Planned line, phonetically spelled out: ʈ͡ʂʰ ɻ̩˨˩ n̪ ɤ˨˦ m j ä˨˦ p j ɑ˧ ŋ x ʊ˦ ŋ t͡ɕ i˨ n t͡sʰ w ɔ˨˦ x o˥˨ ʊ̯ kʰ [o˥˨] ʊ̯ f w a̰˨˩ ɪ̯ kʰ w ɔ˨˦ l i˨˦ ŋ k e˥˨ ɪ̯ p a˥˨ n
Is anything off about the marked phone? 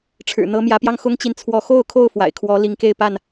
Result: no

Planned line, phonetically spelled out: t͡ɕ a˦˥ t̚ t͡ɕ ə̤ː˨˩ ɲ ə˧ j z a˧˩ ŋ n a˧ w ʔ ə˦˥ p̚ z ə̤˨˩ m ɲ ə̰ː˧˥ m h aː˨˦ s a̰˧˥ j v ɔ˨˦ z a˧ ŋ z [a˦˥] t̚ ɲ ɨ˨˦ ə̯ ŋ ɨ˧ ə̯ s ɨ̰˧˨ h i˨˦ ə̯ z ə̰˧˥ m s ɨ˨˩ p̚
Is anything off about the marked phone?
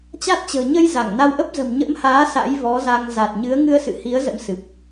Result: yes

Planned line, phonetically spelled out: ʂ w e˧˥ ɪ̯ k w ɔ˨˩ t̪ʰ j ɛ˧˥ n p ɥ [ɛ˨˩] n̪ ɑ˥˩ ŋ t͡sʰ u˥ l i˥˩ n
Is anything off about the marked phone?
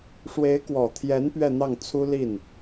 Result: yes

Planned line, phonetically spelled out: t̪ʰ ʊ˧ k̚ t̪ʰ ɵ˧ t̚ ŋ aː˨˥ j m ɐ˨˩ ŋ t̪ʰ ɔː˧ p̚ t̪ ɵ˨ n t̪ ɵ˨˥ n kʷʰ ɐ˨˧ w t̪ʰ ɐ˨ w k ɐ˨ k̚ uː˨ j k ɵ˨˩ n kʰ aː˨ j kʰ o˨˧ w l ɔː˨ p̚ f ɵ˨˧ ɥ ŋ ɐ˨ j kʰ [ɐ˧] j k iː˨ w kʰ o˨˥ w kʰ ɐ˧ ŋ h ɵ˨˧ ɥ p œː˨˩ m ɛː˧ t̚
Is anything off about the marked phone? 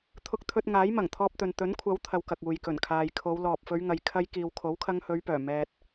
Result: no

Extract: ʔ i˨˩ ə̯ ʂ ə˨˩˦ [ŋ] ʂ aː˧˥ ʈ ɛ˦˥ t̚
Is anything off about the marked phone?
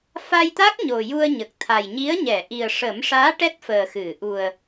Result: yes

